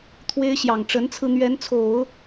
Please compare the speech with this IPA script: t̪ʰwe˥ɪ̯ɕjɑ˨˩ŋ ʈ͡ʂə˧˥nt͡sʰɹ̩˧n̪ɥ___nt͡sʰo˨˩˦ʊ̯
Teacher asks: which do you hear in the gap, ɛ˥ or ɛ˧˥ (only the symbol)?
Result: ɛ˧˥